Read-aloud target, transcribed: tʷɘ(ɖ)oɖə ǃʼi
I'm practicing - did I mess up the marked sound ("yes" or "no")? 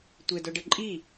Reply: yes